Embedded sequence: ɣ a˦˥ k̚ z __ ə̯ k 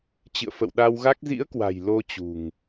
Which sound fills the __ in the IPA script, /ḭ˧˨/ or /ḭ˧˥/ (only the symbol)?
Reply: ḭ˧˥